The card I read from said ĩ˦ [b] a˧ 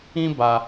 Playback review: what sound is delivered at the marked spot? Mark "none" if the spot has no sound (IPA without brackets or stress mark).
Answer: b